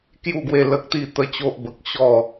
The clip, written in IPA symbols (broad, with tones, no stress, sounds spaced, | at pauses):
k j u˥˧ ɡ w e˥˧ l ə˦ k̚ t̪ i˥˧ t̪ ə˦ t͡ɕ o˦ ʔ b ə˨ k̚ ɕ ɔ˥˧